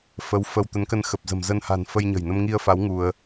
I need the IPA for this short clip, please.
fə˨˦w fə˧w t̪ə˨˦nkə˧nxə˨˩p̚ zə̤˨˩m zə˧nha̤˨˩n fə˧jɲə̤˨˩jnə˧m ŋi˧ə̯fa˨˦w ŋu˧ə̯

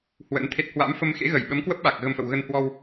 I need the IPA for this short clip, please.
hwə̰˧˥nt̪ʰe˦˥t̚ hwa̰˧˥mfə˧m xḛ˧˥ɣə˧˩jɓə˨˦mkwə˦˥p̚ ɓa˨˩k̚ɣə˧mfə̰˧˨w ɣə˧nhwɔ˧w

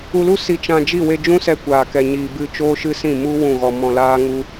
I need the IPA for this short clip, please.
u˧lu˦ si˧t͡ʃã˧ d͡ʒi˦˨we˧d͡ʒũ˦sɛ˧ kʷaː˨kɛ˨ɲi˨bɨ˧ t͡ʃoː˦ʃɨ˦ sĩ˦˨mu˦ wũ˦˨ɣɔ˧ mɔ̃˧laː˦ŋu˦

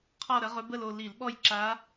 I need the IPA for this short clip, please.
qʰɔ˥˧ ɾə˧˥ʁɵ˧˥bə˥˧lo˥˧ li˧˩˧l ɓɔ˥˧jǁa˧˥

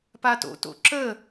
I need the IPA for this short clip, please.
pato̰ to̰ǁə

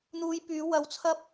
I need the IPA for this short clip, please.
n̪uː˧jpyː˨˧ wɐ˨wt͡sʰɐ˧p̚

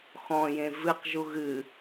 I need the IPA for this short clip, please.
xɔ̃jẽ vɨqʒu ɣɨ

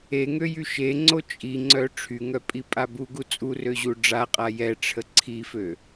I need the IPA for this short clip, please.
eŋøjy ʃeŋ͡ǀo t͡ʃʼiŋ͡ǀœ ʈ͡ʂʰyŋœpʼipʼa buɡu t͡sʼurøʑu ɖ͡ʐaqʼa jɛʈ͡ʂʰə ǀʰifø

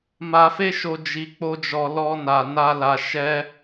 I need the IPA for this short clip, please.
ma˧fe˦ʃo˧ d͡ʒi˧k͡po˦d͡ʒɔ˧ lɔ˦na˧ na˦la˧ ʃɛ˦

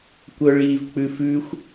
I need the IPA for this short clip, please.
kʷœɭiːvk͡pʉfʉxʷ

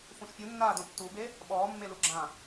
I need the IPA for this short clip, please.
fũʃpʲu nːaːdõtːube | ɓɔːmːe luɡ͡ǁã

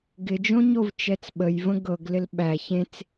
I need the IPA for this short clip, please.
ɡɪd͡ʒõɲov t͡ʃɛt͡sɓəjvə̃ ɡɤɡlɪl ɓæ çẽt͡s

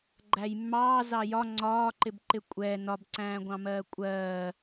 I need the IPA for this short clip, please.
ɡ͡ǃæjmːɑː zɑjɒ ŋ͡ǀɒːǃɪbǃɪ kʷʼɛ nɒbǀæ̃ːɡʷɑ̃mɜː kʷʼɜː

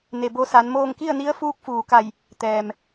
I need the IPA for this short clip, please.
ne˩bo˧sa˩˧nmoː˥˨ŋ ki˥˨ə̯ni˧˥ə̯ fuː˧˥k̚fuː˩ka˧˩j | t̪ɛː˩m

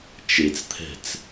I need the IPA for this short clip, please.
t͡ʃet͡st̪ʰɛ̤t͡s

